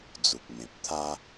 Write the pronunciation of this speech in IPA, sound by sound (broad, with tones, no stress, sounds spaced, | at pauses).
d͡z u˨ k̚ m ẽ˨ p̚ t̪ʰ a˦